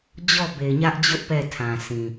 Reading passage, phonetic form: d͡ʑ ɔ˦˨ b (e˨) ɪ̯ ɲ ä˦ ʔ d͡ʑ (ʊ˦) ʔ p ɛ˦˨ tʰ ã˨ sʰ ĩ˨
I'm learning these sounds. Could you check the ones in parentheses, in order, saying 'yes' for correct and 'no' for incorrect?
yes, yes

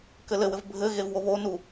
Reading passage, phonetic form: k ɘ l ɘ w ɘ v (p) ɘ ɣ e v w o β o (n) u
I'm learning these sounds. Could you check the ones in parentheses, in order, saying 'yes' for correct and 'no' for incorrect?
no, yes

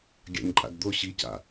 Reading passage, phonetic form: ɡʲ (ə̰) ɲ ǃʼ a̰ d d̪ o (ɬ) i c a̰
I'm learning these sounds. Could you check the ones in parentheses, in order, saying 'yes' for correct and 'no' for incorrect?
no, no

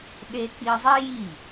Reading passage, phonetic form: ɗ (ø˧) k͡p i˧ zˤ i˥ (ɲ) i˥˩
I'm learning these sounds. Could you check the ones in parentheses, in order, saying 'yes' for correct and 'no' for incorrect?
no, no

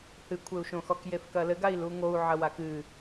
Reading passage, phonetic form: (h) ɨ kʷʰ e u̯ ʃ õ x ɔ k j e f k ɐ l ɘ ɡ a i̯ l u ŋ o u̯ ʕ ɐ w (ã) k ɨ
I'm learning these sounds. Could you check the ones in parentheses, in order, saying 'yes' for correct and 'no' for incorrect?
yes, no

